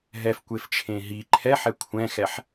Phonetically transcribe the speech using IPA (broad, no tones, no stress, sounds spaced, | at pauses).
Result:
ɦ ɛ f kʷ e f t͡ʃʰ ẽ ɦ i ǃʰ ɛ ħ ɛ kʷʰ ɛ̃ x ɛ ħ